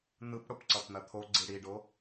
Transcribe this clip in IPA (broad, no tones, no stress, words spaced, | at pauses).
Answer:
n̪ɯpɽop ǀʌpn̪ɐt̪ʰo ɡ͡ǀiɽiɖo